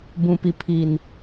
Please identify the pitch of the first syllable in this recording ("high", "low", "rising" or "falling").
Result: low